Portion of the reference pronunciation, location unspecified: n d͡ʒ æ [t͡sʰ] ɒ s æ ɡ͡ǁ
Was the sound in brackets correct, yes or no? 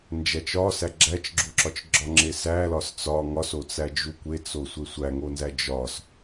no